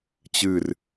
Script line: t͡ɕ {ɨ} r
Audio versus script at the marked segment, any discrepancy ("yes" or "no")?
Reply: no